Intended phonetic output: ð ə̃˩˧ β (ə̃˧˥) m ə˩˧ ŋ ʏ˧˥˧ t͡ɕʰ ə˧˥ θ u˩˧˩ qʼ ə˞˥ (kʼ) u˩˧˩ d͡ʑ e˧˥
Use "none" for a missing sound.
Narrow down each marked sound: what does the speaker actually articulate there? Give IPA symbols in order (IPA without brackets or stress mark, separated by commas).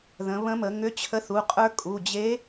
ə̃˧˥, kʼ